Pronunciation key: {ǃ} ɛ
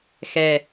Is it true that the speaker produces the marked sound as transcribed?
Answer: no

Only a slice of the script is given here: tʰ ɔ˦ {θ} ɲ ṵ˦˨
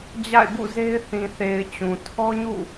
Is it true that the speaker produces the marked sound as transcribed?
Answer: no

